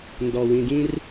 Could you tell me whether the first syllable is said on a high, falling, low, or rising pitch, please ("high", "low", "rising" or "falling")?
low